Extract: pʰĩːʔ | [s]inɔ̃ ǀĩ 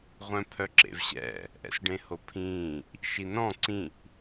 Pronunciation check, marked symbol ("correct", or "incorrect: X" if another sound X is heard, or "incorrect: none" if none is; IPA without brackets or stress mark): incorrect: ʃ